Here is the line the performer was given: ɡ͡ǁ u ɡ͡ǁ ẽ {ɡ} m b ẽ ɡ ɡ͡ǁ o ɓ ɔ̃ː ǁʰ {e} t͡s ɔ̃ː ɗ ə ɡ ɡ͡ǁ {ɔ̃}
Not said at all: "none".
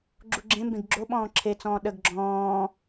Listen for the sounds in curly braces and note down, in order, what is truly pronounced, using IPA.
none, e, ɔ̃ː

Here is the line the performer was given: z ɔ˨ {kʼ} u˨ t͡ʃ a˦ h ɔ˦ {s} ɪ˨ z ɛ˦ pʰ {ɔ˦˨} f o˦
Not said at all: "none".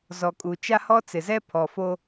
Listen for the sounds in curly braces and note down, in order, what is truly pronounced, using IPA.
kʼ, t͡s, ɔ˨

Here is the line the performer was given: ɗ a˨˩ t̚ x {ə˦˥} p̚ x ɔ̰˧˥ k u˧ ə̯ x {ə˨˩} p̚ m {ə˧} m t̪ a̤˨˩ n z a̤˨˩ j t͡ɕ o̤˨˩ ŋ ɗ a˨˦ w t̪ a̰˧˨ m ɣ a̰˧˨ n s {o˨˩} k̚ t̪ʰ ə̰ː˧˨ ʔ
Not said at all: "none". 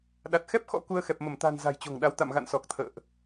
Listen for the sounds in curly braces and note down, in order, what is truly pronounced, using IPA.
ɛ˦˥, ɛ˨˩, ə˧˩, ɔ˨˩

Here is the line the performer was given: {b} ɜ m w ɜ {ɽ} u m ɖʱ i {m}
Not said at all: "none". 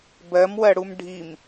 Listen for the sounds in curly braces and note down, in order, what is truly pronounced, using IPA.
b, ɽ, m

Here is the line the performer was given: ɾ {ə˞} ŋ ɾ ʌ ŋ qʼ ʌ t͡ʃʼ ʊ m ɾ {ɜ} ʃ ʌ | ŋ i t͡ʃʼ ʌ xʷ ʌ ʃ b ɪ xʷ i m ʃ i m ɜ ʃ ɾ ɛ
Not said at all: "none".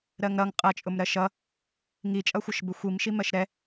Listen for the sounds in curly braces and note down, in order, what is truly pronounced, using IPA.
ɜ, ɜ

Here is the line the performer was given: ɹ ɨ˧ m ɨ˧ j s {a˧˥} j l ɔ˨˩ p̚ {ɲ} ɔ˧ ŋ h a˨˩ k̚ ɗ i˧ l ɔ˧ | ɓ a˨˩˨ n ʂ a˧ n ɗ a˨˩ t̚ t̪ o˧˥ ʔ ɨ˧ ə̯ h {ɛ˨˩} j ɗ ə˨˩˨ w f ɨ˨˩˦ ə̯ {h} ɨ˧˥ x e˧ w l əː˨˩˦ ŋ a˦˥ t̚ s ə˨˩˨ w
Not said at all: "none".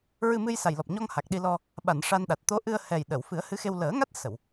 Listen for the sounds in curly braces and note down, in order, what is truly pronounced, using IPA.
a˨˩, ɲ, ɛ˨˩, h

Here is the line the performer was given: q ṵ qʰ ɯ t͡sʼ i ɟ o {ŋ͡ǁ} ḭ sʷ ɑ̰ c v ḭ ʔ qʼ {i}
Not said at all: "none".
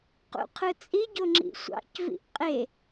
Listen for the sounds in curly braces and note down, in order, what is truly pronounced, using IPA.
ŋ͡ǁ, e

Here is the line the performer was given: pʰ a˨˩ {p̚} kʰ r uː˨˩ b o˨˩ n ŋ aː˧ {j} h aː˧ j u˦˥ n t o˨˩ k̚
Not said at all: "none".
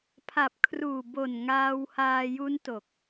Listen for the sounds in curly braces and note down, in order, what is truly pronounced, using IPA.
p̚, w

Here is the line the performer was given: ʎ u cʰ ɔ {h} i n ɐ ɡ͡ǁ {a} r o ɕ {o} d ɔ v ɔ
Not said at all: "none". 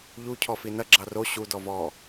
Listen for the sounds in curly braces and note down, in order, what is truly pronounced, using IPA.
f, ɑ, u

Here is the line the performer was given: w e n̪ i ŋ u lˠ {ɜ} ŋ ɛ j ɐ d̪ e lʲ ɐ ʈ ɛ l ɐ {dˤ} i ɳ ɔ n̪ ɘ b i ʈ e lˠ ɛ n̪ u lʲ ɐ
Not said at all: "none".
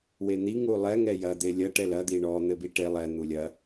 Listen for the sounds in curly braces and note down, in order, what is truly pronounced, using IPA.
ɛ, d̪

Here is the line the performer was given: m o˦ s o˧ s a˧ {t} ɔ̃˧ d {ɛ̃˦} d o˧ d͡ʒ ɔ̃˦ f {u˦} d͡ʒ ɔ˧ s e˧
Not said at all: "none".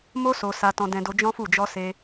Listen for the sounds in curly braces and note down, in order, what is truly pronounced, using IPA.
t, ɛ̃˧, u˦˨

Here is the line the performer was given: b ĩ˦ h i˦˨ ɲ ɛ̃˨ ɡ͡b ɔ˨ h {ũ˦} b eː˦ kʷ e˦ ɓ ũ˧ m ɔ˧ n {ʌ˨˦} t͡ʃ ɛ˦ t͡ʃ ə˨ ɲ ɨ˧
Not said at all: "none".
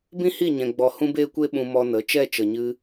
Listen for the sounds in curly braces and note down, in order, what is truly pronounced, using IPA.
ũ˦, ə˨˦

